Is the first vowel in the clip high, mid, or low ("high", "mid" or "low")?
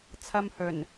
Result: low